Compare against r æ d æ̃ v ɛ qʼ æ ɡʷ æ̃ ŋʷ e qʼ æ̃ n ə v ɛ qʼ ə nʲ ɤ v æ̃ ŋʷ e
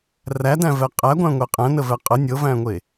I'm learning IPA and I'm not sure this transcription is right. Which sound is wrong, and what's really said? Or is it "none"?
none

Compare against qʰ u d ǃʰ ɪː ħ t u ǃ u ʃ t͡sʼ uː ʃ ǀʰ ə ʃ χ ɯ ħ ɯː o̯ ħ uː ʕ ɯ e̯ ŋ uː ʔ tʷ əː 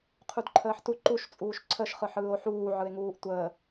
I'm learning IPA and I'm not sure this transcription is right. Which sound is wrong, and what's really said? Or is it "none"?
ɪː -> əː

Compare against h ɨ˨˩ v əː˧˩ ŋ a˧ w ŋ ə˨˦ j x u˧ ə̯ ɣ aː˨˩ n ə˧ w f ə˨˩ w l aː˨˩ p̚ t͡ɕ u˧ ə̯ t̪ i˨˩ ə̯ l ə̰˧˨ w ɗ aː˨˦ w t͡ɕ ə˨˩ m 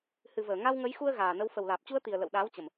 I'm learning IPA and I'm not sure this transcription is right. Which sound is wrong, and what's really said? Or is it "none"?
none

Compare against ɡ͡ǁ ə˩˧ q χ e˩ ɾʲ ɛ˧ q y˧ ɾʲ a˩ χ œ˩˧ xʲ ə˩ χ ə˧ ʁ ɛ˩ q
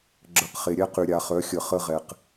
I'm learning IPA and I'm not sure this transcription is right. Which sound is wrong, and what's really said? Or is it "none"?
y˧ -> y˩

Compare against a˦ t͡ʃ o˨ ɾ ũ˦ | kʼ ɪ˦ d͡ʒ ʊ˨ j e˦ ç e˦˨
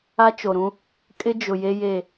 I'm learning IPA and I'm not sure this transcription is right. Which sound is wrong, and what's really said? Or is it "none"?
ç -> j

